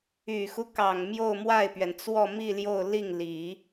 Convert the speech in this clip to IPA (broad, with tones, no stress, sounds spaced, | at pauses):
y˨˩ x u˦ k ɑ˨˩ ŋ m j o˥˧ ʊ̯ m w a˥˩ ɪ̯ p ɥ ɛ˩ n t͡s w ɔ˥˧ m i˥˧ l j o˥˧ ʊ̯ l i˥˩ ŋ l i˨˩˦